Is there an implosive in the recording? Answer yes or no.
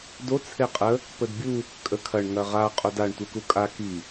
no